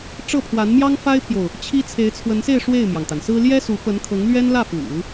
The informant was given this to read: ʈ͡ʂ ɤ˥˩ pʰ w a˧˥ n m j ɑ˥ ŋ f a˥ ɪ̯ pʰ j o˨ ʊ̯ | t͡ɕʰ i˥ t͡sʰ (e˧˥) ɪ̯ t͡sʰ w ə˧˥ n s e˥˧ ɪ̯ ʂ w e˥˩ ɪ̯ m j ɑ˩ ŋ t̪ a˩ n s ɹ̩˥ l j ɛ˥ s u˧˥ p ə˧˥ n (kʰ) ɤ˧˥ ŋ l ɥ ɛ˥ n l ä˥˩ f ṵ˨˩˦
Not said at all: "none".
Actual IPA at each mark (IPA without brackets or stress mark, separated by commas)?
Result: e˧˥, kʰ